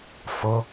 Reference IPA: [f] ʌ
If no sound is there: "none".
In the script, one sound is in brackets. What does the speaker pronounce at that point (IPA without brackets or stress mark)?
f